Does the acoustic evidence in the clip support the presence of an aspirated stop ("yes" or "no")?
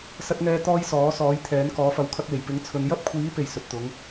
yes